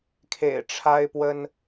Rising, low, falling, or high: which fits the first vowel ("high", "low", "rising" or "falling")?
low